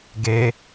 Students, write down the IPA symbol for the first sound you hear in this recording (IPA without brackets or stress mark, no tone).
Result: ɡ